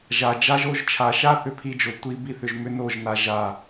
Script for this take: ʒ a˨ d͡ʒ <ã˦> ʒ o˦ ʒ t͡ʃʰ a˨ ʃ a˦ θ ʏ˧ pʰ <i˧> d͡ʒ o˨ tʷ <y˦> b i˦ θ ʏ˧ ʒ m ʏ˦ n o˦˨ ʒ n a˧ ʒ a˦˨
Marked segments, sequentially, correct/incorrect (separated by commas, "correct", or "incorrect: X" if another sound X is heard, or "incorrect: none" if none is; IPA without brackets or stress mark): incorrect: a˦, correct, incorrect: i˦